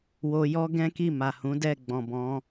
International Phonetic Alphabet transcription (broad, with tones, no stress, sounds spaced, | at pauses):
w o˧ j ɔ˦ ɡ ɛ̃˦ k i˦˨ m a˨ h ũ˨˦ d ɛ˦˨ ɡ͡b ɔ̃˨ b ɔ̃˨˦